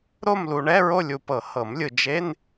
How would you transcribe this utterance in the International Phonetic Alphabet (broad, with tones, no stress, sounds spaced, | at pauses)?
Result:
ɾ o˥˧ m l u˨ ɳ ɛ˧˥˧ ɹ o˥˧ lʲ u˨ p ɤ˨˩˦ h ɤ˨˩˦ m lʲ ɯ˨ d͡ʒ e˧˥˧ n